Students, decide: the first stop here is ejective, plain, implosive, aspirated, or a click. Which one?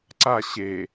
click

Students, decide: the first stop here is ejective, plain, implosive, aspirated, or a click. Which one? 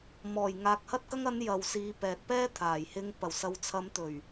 plain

